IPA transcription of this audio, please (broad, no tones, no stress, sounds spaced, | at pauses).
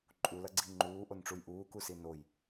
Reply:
ǃʼ u l ɐ ɡ͡ǀ i ŋ͡ǃ uː ʔ o n ʈ͡ʂ u j ʔ uː k u s i n o j